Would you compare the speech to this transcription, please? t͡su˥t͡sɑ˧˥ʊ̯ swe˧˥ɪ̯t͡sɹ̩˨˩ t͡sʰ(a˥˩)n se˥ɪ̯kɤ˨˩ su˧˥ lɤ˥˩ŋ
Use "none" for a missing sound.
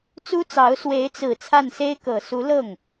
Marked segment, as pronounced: a˥˩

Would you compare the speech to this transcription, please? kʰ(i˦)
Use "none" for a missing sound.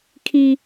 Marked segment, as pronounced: i˦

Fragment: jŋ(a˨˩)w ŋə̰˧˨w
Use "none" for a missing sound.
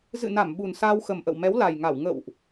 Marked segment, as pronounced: a˧˩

